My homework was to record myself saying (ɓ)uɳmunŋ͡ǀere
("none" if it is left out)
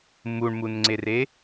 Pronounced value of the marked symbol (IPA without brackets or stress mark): m